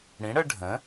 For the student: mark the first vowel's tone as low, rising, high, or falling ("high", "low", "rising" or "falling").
rising